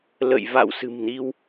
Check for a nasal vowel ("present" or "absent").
absent